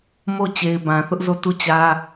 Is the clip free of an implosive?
yes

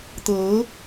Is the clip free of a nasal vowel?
yes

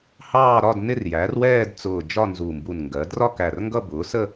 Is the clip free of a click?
yes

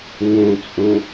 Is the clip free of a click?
yes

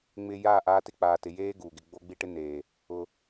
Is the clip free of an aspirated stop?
yes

